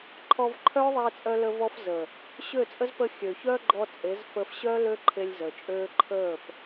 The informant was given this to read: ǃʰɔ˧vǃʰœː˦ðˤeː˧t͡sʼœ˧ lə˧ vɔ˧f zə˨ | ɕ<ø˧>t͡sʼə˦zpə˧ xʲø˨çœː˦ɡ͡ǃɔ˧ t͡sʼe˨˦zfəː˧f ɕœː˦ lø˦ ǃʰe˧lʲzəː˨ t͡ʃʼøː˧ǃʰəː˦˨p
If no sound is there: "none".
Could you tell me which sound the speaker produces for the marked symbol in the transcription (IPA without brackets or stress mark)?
ø˦˨